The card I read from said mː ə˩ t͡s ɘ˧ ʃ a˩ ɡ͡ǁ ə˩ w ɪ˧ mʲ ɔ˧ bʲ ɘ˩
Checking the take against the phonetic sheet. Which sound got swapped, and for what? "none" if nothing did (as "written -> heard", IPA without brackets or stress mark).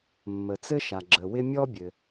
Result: none